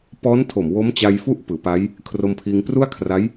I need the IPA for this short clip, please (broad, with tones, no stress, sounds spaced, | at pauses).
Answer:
p ɔː˦˥ n tʰ o˨˩ m w o˦˥ m t͡ɕ a˧ j f u˥˩ ʔ p ɯː˩˦ p a˦˥ j | kʰ r o˧ m pʰ iː˧ ŋ p r u˥˩ a̯ kʰ r a˦˥ j